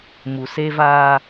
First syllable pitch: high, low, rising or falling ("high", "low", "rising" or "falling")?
low